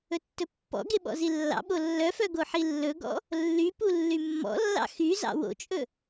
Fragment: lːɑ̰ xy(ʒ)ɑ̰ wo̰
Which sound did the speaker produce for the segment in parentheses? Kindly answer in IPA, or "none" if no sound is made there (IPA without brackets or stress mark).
z